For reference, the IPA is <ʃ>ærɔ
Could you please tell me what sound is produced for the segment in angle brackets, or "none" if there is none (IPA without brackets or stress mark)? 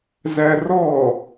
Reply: z